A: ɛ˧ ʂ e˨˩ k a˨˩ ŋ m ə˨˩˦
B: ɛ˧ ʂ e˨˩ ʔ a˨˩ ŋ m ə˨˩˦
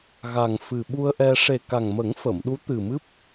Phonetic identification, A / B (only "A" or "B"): A